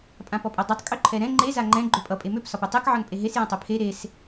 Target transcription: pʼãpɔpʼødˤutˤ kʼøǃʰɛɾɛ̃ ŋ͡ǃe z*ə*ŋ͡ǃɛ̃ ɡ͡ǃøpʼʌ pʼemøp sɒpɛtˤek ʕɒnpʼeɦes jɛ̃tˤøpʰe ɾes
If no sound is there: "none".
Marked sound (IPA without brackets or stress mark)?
a